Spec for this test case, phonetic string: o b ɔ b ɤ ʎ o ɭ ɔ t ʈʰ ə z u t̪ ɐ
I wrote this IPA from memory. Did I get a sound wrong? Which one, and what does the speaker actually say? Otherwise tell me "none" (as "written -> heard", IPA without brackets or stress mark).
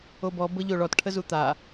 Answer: ɐ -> a